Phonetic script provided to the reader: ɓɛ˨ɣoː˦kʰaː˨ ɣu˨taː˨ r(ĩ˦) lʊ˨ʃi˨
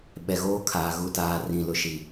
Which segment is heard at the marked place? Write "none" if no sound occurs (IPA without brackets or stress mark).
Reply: ĩ˨